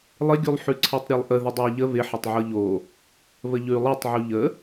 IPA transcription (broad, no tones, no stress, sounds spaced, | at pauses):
lˠ ɪ ɡʲ u lˠ ħ ʉ ǀʰ ɛ tˤ ɾʲ e lˠ ʔ ə ð ɪ dˤ ɤ ə̯ ʎ ə β ɪ ħ ɪ tˤ ʕ ɤ ʎ o | β ə ʎ ʉ lˠ e tˤ ʕ u ʎ ə